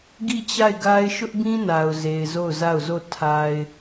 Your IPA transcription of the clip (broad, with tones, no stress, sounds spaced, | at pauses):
ɡ i˦˨ t͡ɕ a˦˨ ɪ̯ ɡ a˦ ɪ̯ ʃ ʊ˦ ʔ b ĩ˦ n a˨ ʊ̯ z e˨ ɪ̯ z o˦˨ ʊ̯ z a˦˨ ʊ̯ z o˦˨ tʰ a˨ ɪ̯